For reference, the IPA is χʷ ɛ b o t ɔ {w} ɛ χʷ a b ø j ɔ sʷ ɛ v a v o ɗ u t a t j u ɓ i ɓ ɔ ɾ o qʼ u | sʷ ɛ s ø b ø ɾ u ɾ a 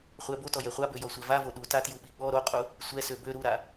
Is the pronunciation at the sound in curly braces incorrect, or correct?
incorrect